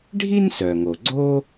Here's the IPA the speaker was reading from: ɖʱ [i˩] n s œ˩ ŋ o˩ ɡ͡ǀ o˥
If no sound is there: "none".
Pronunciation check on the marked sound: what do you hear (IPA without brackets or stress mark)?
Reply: i˥